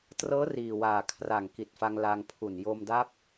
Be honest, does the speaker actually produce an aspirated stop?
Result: yes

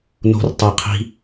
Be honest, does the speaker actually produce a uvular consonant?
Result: yes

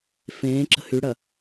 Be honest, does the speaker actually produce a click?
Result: yes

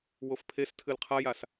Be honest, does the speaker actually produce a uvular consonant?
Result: yes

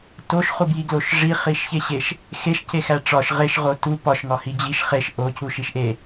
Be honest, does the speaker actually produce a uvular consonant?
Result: yes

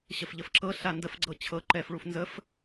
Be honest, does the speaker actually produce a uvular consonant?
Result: no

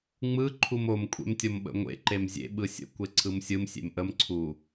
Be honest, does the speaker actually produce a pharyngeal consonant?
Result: no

